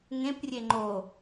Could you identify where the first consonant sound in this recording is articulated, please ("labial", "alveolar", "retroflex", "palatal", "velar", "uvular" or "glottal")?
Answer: velar